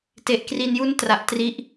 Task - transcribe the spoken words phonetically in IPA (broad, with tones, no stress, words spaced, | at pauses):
te˨˩ʔkri˧n ju˦˥n tra˨˩ʔtri˥˩ʔ